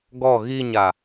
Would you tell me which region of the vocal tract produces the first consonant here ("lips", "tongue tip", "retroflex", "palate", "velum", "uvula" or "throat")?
velum